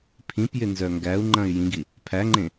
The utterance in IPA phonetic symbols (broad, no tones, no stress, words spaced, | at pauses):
pʰĩpjɪ nzœŋɡæu̯ŋ͡ǃɐ̃y̯ jĩɡi | pʰæŋ͡ǃẽ